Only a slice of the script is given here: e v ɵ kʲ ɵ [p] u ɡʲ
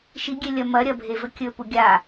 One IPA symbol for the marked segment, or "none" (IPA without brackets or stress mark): p